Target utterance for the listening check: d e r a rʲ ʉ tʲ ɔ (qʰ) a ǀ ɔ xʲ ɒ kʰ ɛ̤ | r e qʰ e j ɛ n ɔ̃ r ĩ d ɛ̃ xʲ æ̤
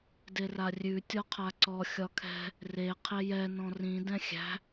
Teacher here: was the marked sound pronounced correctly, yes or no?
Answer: yes